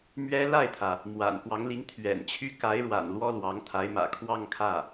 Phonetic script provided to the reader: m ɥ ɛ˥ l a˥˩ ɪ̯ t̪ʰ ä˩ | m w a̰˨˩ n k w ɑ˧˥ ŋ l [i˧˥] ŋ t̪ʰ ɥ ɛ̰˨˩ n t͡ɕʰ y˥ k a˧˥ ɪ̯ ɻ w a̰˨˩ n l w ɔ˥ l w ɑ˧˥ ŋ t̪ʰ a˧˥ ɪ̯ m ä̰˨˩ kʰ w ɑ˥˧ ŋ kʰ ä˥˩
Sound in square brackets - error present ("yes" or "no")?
no